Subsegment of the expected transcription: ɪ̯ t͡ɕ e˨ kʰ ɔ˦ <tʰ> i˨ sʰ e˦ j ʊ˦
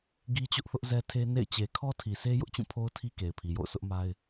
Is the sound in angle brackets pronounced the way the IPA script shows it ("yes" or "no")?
yes